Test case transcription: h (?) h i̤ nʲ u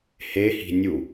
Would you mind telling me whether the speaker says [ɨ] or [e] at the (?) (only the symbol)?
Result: e